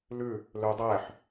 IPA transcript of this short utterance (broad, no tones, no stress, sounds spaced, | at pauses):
l ʉ | l ø dˤ ɛː ħ